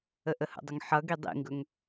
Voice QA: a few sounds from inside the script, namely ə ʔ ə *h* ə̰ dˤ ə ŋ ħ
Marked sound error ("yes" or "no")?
no